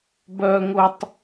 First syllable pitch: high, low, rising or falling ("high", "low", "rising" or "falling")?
high